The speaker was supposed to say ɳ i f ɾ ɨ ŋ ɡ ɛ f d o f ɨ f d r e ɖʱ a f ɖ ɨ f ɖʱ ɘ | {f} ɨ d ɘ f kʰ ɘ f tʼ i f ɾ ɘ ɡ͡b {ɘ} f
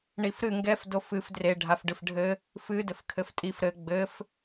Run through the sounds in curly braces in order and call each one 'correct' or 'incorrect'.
correct, correct

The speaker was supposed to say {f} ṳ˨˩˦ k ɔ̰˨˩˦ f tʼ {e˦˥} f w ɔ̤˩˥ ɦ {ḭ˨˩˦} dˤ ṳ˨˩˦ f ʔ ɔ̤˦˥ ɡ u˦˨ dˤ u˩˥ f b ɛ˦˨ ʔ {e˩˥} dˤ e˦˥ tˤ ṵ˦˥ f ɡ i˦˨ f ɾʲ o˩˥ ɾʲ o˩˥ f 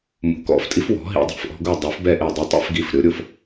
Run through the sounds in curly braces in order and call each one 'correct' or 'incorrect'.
incorrect: m, incorrect: i˦˥, correct, incorrect: e˦˨

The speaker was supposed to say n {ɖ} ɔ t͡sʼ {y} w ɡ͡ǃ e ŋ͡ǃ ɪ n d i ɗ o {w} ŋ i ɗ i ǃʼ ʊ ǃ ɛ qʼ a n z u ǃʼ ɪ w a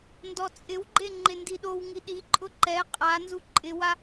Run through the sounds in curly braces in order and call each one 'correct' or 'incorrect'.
incorrect: d, incorrect: ɪ, correct

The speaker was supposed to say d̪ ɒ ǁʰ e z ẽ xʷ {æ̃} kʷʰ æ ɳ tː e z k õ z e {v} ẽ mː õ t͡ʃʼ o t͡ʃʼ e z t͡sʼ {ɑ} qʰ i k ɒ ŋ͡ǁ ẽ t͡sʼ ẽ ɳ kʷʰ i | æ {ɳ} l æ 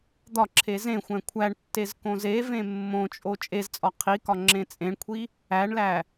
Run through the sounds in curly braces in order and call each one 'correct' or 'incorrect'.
correct, correct, incorrect: ɒ, correct

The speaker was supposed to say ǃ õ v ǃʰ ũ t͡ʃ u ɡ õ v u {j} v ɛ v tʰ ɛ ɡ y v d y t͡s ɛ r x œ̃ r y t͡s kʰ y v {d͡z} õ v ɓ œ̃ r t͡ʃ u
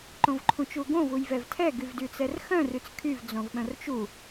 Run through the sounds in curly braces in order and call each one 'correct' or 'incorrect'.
correct, correct

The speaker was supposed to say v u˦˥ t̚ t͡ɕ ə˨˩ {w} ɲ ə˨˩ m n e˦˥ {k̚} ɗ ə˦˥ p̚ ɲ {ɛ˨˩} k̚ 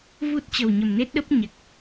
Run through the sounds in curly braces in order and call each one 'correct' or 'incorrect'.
correct, incorrect: t̚, correct

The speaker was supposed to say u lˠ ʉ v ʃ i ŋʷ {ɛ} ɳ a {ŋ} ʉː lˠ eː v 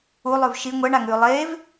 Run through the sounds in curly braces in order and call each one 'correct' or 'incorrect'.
correct, correct

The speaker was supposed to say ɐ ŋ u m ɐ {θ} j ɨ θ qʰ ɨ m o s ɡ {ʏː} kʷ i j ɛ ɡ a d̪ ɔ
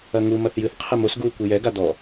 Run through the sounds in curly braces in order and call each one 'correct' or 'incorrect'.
correct, incorrect: uː

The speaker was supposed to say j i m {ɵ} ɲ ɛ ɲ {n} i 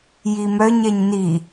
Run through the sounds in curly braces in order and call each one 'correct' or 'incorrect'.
incorrect: œ, correct

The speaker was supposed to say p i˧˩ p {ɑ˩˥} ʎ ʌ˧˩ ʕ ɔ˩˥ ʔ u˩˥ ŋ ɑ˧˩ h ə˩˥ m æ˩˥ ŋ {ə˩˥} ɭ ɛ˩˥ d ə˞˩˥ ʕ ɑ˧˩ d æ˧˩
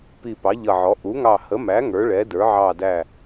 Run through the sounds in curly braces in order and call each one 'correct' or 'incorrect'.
correct, incorrect: ə˞˩˥

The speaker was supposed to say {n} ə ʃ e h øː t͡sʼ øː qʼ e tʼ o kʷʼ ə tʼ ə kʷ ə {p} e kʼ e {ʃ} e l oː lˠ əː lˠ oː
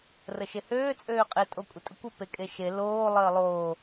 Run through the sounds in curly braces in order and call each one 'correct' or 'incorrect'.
incorrect: r, correct, correct

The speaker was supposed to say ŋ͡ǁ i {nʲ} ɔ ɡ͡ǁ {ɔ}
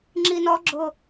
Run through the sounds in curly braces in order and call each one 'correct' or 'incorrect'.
incorrect: n, incorrect: ʊ

